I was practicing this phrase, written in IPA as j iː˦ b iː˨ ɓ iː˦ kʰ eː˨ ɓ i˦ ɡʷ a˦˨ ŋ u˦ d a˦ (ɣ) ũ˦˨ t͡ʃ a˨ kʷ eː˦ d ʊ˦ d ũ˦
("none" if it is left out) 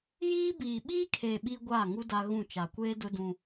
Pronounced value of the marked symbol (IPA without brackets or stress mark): ɣ